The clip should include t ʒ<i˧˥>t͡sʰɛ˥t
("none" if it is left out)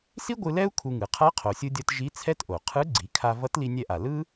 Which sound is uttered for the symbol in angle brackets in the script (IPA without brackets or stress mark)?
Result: i˧˥